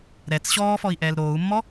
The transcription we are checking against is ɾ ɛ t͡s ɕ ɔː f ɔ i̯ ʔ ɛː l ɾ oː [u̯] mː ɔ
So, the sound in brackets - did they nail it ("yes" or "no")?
yes